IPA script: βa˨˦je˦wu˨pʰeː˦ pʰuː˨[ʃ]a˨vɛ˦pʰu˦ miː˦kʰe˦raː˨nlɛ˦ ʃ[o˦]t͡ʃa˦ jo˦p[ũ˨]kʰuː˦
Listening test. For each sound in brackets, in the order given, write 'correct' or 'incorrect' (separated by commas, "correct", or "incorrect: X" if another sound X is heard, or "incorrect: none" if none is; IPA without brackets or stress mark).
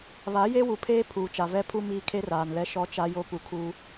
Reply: incorrect: t͡ʃ, incorrect: ɔ˦, incorrect: u˨